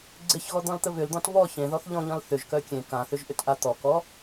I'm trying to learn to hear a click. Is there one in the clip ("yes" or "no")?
yes